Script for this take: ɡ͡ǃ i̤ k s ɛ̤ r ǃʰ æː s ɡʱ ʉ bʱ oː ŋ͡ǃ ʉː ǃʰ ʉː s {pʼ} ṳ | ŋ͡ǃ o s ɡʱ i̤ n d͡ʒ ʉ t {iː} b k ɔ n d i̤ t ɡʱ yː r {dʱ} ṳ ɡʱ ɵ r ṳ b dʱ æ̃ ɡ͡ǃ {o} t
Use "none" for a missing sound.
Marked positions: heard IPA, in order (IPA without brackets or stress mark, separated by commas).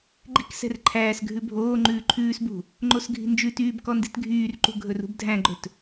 b, yː, ǃ, ɵ